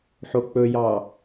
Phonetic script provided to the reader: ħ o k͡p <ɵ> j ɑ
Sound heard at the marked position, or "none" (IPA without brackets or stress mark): ɵ